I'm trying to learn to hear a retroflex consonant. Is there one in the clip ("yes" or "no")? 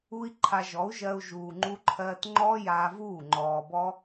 no